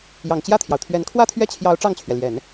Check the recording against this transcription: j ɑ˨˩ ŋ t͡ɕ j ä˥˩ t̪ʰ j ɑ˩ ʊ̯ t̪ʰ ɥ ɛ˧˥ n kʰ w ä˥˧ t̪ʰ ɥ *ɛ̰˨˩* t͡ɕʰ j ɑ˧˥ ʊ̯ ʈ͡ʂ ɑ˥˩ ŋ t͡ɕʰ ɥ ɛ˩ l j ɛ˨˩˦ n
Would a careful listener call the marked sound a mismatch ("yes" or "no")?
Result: yes